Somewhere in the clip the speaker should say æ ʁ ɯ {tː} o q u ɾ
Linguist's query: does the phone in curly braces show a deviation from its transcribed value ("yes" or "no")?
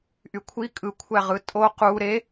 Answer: yes